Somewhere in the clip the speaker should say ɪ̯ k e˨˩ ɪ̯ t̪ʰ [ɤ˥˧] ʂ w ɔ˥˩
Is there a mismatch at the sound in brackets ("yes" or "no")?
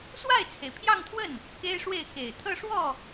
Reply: no